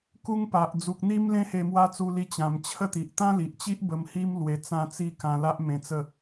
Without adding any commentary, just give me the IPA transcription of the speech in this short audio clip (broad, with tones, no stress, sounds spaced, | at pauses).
k u˦ ŋ p a˨ ʔ d͡z u˨ k̚ n̪ i˦ m l ẽ˦ h e˧ m w a˥˧ t͡s u˧ l i˧ t͡ɕ ã˨˩ m t͡ɕʰ ə˥˧ t̪ i˨ ʔ t̪ ã˦ l i˨ ʔ t͡ɕ i˦ ʔ b ə˧ m h i˦ m l w e˧ t͡s ã˥˧ t͡s i˦ k ã˧ l a˦ ʔ m ẽ˧ t͡s ə˥˧